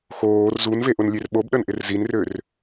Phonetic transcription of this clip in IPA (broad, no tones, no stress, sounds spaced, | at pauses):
x oː r z u n v e ʔ ʊ n lʲ e r ɓ o b ɗ ə n ʔ ɪ r z i n r ø r